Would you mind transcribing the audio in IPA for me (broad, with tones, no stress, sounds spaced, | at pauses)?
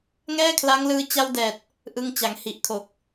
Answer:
ŋ ɛː˥˩ kʰ l a˦˥ ŋ l ɯː˧ t͡ɕ a˧ w d ɛː˨˩ t̚ | ʔ ɯ˧ ŋ t͡ɕ a˩˦ ŋ h i˨˩ ʔ kʰ o˨˩ k̚